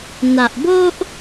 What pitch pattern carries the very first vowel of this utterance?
low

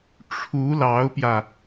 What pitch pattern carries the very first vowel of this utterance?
rising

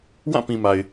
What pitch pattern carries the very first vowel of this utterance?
falling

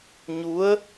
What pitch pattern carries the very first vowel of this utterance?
rising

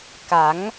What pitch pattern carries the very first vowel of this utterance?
rising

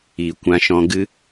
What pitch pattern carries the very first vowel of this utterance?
low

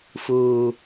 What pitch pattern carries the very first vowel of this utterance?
low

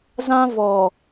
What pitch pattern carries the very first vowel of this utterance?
high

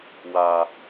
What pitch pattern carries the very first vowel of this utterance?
low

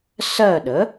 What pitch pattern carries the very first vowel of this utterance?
falling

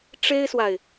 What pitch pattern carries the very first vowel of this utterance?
high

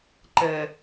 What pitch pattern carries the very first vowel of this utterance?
low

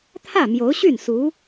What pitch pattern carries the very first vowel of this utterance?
falling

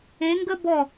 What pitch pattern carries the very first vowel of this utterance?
rising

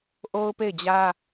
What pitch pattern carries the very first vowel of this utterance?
high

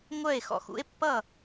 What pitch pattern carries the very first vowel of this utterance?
falling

